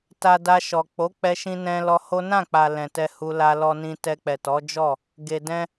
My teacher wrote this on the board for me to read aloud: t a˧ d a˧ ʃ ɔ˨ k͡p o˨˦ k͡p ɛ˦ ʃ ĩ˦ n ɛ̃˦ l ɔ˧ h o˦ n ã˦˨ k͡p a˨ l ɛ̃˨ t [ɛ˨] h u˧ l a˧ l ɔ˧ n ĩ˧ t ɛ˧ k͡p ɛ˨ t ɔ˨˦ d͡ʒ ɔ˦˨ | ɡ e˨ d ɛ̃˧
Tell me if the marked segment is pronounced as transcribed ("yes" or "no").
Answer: no